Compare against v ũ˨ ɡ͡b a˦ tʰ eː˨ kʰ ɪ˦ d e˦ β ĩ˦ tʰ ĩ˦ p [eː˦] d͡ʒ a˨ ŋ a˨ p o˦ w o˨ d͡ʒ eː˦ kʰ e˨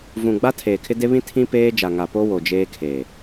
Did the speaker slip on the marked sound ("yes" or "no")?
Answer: no